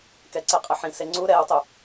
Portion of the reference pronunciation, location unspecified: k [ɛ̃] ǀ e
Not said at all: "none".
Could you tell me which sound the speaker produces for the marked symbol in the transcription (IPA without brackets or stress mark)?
ɛ